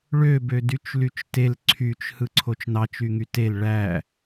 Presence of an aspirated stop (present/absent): present